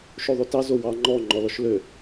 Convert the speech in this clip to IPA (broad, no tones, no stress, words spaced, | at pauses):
ʃoðˤotɑ zowɑ ŋ͡ǃɔ ŋ͡ǃɔlɔʃlø